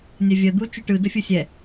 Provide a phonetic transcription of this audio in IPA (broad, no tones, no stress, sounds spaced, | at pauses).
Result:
nʲ ɛ vʲ ɜ d̪ u t͡ʃ u ʈ ɯ d ə fʲ ɯ sʲ ɛ